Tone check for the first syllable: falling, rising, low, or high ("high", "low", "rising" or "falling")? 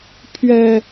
low